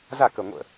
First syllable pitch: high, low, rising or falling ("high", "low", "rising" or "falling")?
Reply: falling